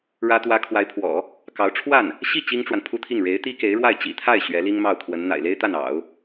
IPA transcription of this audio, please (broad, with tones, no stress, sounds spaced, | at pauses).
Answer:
ɻ ä˥ t̪ w ä˥ kʰ w a˧˥ ɪ̯ pʰ w ɔ̰˨˩˦ | k ɑ˧˥ ʊ̯ ʈ͡ʂʰ w a˥˩ n | ɕ i˥˩ t͡ɕ i˥ ŋ ʈ͡ʂ w a˨ n pʰ u˥ t̪ʰ i˥˩ ŋ ɻ e˧˥ ɪ̯ t̪ i˥ k e˧˥ ɪ̯ ɻ w a˥˩ ɪ̯ t͡ɕ ḭ˨˩ t̪ʰ a˥˩ ɪ̯ ɕ ɥ ɛ˧˥ l i˥ ŋ m ɑ˥˩ ʊ̯ kʰ w ə˧˥ n n̪ a̰˨˩ ɪ̯ l e˥ ɪ̯ t̪ a˥˩ n ɑ̰˨˩˦ ʊ̯